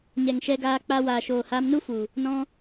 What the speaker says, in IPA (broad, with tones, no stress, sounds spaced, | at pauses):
ɲ ɛ˨ ŋ ʃ ɛ˧ ɡ aː˧ k͡p a˧ w aː˨ ʃ oː˨ h aː˧ m n u˦ f u˨ | n ɔ̃˦